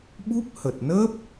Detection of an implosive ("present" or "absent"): present